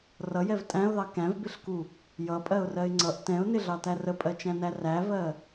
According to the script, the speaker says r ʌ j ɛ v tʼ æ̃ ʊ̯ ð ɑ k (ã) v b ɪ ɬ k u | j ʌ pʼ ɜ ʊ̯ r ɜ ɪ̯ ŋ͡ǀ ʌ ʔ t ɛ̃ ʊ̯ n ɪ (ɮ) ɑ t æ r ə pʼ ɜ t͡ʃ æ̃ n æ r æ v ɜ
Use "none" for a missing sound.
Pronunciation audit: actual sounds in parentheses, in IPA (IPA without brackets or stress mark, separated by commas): æ̃, ɮ